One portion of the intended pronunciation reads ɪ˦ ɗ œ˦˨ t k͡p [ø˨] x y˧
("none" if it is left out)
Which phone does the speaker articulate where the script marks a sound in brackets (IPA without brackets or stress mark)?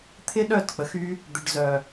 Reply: ə˨